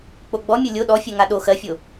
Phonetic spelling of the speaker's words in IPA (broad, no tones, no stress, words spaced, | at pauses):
k͡poɡ͡bɔ mʲolʲo ɗɔfʲɜŋa ɗo xɜfʲo